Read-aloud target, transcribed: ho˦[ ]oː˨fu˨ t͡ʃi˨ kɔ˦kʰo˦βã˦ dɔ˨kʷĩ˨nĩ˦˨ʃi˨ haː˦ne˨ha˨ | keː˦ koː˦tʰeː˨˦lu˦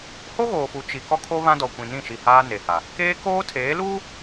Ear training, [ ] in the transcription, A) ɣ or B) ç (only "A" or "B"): A